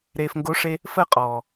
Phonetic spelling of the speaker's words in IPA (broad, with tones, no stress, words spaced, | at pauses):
ɾeː˨fŋɡo˨˦ʂe˧ | fəː˧ qʼɔː˨